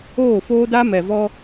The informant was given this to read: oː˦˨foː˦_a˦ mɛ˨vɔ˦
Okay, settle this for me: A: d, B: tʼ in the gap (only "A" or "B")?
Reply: A